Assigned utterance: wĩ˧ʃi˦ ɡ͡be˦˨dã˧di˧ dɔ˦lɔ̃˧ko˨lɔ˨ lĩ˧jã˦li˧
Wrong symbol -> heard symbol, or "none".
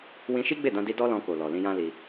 none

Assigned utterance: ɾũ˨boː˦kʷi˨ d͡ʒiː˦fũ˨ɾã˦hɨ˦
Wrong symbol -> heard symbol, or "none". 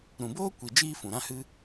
none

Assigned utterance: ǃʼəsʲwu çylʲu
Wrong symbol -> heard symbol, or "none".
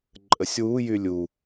ç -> j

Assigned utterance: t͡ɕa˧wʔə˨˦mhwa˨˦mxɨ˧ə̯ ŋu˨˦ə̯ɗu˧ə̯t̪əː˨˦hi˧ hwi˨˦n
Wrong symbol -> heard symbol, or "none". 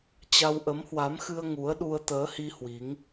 n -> ŋ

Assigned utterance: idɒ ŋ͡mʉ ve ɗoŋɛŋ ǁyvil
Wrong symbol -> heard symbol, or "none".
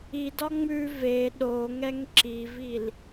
y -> i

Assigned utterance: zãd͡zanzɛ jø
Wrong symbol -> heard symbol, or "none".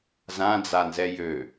none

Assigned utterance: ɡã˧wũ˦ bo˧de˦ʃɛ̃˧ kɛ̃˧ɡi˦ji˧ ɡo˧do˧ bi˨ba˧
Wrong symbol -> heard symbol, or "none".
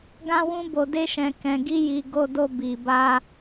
ã˧ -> ã˦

